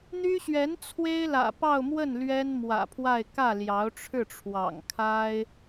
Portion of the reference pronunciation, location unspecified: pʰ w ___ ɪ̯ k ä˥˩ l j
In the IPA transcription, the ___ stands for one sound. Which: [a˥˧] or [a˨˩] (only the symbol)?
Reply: a˥˧